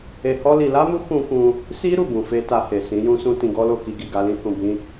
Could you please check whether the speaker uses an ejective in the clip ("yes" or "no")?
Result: no